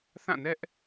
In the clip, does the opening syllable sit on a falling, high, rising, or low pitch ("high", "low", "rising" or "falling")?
falling